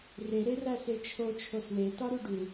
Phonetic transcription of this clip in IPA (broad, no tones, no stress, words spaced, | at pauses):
re ɾeræset͡ʃʰo t͡ʃʰoswe tɒɾuɖu